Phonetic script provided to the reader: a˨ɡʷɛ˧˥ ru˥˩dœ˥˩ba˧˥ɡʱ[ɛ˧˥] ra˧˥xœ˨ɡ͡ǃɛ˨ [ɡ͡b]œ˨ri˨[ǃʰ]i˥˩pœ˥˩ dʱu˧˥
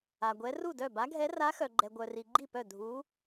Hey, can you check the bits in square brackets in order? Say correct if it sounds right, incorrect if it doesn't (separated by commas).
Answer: correct, incorrect, incorrect